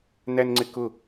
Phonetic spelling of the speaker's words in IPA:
nænŋ͡ǀɪkʊ

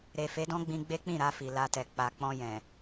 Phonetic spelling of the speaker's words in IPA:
ɾe˨fe˨˦dɔ̃˦ɡ͡bĩ˧ ɡ͡be˦k͡pĩ˦˨ɾa˧ fi˨la˧tɛ˨ k͡pa˨k͡pɔ̃˧ jɛ̃˨

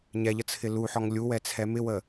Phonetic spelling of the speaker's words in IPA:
ɲɛ ʎət͡sʰɪluħɔŋ lʲuwɛ t͡sʰɛmɪwə

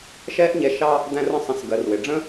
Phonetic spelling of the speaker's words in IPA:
ʃɛ˦ʔɲɛ˧ ʃɑ˦ | d̪æ̃˦rə̃˦sˤə̃˧s ɡɜ˨rwɪ˨ɖ͡ʐə̃˦

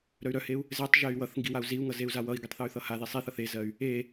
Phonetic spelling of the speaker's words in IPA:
ɾœy̯ɾœheu̯ | zetˤ ʒey̯wʌθŋɡi wau̯ziu̯ŋʌ zeu̯zawʌi̯ɡitˤ θœy̯θʌhaði sˤiθʌθ ezɜy̯ | e

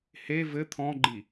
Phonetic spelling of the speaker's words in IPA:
he vɘ t̪ʰɔ̃ɡ͡ǃi

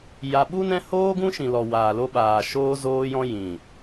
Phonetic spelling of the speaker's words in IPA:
ja˧ ɓu˦nɛ̃˦ hoː˦ɡũ˦ʃĩ˨ lɔ˨ waː˨lo˧ɓaː˨ ʃoː˧zoː˧jɔ̃˧ jĩ˨

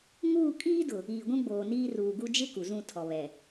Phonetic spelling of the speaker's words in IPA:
ŋuː˦˨ kʼiː˦dʊ˨ | iː˨ɡʷũ˦ɡ͡boː˨niː˦ ruː˨ɡu˦ d͡ʒɪ˦ ku˨zũ˦˨tʰɔ˨βɛ˨

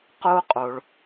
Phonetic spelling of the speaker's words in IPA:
qo˥qʼo˩ɭ

